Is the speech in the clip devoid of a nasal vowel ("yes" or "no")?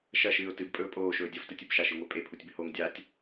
yes